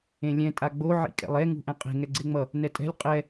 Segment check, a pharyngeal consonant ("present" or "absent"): present